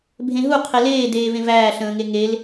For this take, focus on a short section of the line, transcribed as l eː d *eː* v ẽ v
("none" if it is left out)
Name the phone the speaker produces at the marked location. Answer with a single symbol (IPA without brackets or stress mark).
eː